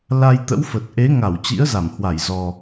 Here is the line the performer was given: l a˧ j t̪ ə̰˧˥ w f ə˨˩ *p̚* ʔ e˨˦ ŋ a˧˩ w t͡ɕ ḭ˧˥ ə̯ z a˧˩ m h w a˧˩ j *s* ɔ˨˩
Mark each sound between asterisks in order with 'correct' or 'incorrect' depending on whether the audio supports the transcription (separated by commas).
incorrect, incorrect